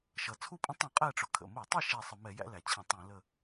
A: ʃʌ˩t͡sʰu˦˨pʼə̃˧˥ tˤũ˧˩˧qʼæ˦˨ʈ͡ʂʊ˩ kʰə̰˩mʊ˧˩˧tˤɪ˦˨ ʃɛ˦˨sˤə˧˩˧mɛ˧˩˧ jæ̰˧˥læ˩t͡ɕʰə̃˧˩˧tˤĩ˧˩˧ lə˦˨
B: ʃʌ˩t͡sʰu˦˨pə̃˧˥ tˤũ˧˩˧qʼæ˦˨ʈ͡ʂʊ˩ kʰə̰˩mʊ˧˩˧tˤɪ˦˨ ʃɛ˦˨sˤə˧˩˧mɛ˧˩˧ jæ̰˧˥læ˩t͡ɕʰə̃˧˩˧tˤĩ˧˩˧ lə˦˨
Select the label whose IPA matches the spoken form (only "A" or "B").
A